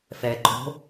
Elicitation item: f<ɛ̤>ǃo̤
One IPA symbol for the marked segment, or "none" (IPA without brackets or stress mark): ɛ